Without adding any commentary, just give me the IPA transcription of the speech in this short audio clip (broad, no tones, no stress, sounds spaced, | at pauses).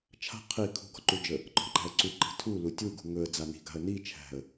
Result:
t͡ʃʰ a̤ qʰ i kʰ ṳ ɡ ɔ̤ ǃ u d͡ʒ ə | ǃ ɔ̤ ǃ æ̤ ə̯ ǀ u ǃ i̤ tʰ u l u tʲ u ɡ ṳ ŋ ɵ ə̯ d͡z a n i̤ ɡ a̤ ə̯ n i t͡ʃʰ æ̤ ə̯